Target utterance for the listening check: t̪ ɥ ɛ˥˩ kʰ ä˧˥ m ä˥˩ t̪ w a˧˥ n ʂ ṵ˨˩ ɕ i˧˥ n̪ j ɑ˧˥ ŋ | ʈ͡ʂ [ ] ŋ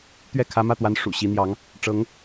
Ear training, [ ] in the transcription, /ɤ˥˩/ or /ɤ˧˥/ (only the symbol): ɤ˧˥